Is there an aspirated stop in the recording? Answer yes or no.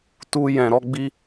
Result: no